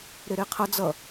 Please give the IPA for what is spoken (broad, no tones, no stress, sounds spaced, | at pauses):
ɾ e ɾ e qʰ ʌ d͡z ʌ